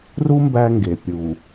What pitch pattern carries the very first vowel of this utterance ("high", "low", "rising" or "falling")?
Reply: high